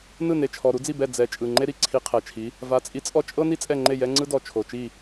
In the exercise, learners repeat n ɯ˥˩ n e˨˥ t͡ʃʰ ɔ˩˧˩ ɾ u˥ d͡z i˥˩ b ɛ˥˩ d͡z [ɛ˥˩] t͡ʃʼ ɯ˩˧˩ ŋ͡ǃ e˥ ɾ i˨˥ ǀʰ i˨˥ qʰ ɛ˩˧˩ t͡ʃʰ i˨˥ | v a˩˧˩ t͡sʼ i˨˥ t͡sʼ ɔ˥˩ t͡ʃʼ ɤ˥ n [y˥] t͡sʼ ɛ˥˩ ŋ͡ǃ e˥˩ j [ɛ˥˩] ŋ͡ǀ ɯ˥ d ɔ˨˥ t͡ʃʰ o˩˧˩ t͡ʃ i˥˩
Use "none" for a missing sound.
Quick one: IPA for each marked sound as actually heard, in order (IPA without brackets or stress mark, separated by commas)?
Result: ɛ˨˥, i˥, ɛ˥